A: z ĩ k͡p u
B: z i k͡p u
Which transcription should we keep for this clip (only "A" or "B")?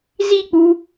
B